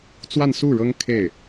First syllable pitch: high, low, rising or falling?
falling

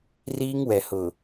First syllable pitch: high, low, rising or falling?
high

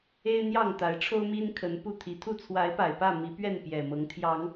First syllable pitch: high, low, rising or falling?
high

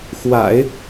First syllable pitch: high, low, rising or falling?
low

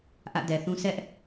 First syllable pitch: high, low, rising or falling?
falling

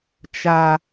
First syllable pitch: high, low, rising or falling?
low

